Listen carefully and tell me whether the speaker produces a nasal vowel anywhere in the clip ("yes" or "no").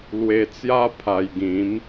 yes